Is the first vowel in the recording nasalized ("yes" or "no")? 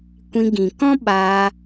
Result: yes